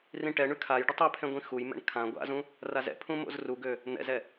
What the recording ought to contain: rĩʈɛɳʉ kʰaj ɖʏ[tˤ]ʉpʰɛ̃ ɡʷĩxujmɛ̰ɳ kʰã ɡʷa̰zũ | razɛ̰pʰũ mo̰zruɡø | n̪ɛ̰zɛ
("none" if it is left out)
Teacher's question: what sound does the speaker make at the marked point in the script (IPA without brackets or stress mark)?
tˤ